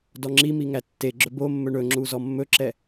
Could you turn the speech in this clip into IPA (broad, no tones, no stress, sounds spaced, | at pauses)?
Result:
d ɔ ŋ͡ǁ i m i ŋ æ tː e ɡ͡ǁ ɵ b o mː ɵ ɳ ɵ ŋ͡ǁ u z ɔ mː ɵ ǁ ɛ